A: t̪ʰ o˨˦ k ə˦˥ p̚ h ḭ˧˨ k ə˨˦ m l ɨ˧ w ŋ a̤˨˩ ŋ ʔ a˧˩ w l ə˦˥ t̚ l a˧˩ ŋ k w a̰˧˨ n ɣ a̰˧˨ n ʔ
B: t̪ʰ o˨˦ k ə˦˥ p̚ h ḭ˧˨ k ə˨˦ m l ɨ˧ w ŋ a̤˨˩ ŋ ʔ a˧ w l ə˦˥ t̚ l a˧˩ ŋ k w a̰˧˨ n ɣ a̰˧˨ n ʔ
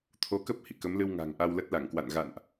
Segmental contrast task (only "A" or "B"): B